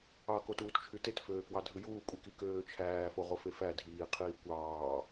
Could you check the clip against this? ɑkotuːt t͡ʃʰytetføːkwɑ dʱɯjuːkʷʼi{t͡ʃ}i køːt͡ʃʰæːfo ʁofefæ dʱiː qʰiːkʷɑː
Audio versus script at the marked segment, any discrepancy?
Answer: yes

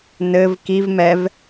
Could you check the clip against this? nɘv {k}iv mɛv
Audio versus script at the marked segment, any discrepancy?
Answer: no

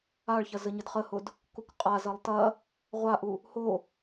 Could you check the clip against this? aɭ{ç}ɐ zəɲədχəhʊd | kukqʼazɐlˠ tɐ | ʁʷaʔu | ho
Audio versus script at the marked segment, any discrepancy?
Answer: no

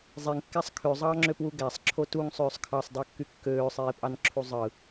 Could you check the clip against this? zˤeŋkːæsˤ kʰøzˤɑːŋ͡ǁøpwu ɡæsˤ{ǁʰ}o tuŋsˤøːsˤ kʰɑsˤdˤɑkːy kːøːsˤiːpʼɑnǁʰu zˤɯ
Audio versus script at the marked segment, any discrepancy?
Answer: no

